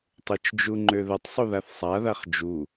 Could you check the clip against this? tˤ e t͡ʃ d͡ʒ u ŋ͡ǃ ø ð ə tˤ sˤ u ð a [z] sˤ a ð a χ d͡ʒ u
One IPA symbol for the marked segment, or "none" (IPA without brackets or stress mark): θ